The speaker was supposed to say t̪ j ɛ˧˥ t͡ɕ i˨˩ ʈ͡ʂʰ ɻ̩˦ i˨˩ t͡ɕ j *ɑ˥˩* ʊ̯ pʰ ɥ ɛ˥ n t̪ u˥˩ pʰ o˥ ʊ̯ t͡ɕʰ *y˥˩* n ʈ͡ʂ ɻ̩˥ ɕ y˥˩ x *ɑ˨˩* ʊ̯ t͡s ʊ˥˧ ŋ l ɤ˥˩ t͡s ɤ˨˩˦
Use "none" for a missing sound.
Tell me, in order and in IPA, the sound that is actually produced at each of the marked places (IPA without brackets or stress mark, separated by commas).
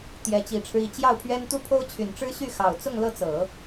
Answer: ɑ˥˩, y˨˩, ɑ˨˩